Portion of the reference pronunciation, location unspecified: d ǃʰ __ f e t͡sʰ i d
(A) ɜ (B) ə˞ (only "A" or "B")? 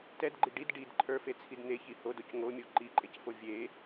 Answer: B